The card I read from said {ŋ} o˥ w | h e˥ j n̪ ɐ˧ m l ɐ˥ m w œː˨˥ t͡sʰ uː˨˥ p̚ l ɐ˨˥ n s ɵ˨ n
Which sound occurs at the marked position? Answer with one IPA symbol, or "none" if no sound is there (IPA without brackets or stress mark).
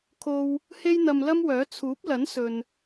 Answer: kʰ